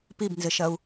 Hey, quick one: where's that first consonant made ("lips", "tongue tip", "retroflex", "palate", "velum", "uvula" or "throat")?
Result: lips